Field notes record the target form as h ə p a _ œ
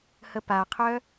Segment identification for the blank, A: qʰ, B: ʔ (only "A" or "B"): A